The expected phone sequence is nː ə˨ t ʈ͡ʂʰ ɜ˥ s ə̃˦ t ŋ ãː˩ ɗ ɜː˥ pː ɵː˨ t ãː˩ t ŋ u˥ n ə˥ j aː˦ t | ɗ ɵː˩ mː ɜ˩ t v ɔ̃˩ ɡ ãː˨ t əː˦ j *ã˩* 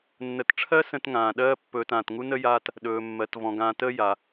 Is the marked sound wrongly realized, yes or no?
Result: yes